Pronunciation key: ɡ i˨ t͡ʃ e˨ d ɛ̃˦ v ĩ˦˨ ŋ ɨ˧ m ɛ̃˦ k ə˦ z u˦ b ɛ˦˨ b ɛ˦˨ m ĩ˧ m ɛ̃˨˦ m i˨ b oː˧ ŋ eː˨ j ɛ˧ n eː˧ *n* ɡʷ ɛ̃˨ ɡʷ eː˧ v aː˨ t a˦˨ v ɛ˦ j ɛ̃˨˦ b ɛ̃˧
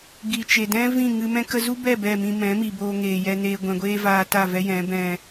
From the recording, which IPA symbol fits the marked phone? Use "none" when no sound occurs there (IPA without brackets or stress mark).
none